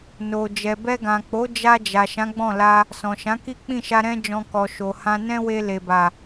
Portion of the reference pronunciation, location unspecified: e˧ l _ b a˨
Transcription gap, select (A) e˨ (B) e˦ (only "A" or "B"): A